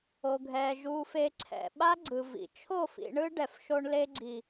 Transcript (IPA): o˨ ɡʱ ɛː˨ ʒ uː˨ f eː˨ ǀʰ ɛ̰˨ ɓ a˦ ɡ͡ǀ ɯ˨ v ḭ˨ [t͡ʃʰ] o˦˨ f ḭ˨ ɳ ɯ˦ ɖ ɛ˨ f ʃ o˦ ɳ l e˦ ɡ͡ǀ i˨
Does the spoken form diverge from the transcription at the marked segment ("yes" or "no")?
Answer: no